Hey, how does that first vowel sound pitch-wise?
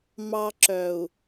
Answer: high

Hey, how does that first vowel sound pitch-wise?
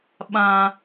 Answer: high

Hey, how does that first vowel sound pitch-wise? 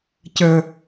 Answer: low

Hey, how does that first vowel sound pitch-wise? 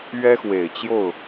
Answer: high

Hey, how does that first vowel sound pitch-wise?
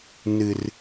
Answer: low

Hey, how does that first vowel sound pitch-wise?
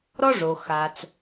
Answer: high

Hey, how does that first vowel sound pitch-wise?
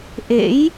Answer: rising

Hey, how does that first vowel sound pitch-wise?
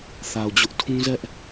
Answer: low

